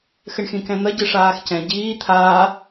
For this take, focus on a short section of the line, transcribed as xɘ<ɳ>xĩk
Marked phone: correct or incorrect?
correct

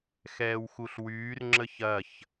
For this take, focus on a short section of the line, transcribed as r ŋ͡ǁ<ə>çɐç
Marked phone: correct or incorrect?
correct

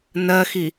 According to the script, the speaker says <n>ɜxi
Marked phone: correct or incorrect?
correct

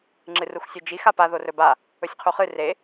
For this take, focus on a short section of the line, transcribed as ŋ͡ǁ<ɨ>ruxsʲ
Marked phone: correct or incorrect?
correct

